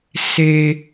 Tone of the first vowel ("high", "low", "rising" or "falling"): low